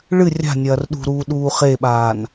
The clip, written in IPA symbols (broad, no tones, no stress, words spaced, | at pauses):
ɭɨ rʲa̤nʲɐːr ɗṳ ɾuːɗuːχeɓaːn